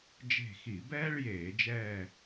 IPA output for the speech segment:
d͡ʒ e̤˦˨ x i˧˩˧ b ɛː˥ ɭ j eː˧˩˧ d͡ʒ ɛː˦˨

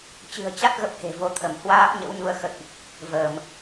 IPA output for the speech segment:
t͡ɕ ɨ̤˨˩ ə̯ t͡ɕ a˦˥ t̚ ɣ ə˦˥ p̚ h e̤˨˩ v o˨˦ t̪ʰ ə˧˩ m h w aː˦˥ p̚ ɲ ə̰˧˥ w ɲ u˧ ə̯ x ə̰˧˨ j ʔ | v əː˧˩˨ m

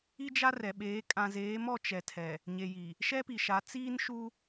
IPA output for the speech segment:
i˦ d͡ʒ a˦ r ɛ˨ ɓ eː˨˦ kʼ ã˨ z eː˨˦ m ɔ˦˨ t͡ʃ ɛ˨ tʰ ɛ˨ | ɲ e˨ j i˨ | ʃ ɛ˦ p i˨ ʃ a˨˦ t͡s iː˦ n ʃ u˦

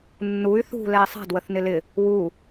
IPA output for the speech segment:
nː u y̯ θ ṳ l ɛ i̯ sˤ a̤ d w ə θ n ɪ l ɪ | w u

